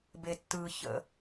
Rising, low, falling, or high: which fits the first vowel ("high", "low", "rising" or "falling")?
low